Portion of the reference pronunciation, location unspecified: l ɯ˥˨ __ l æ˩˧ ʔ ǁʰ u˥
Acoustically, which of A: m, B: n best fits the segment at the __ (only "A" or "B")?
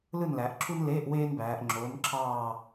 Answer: B